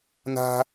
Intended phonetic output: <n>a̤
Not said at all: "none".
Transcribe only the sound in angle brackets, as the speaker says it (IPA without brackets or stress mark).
n